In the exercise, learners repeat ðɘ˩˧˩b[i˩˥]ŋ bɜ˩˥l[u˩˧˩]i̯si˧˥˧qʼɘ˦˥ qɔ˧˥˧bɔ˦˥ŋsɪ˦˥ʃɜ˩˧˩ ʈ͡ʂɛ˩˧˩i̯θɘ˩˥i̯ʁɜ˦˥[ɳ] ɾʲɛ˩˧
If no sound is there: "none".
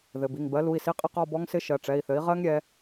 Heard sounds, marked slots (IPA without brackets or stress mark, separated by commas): i˩˧˩, u˩˧˩, ŋ